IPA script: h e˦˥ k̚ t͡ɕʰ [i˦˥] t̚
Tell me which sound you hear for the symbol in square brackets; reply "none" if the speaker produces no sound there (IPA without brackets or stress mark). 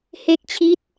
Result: i˦˥